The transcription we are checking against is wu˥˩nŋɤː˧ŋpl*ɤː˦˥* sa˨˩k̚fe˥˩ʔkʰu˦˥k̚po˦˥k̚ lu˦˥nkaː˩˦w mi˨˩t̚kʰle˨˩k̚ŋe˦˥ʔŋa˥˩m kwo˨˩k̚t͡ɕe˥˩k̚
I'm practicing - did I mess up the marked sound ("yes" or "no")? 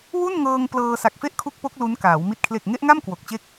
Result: yes